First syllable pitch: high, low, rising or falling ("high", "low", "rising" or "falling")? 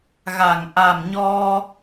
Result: low